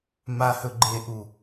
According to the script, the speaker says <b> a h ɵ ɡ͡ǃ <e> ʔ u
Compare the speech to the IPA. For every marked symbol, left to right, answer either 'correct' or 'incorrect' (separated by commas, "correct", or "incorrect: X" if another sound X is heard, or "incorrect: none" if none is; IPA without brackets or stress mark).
incorrect: m, correct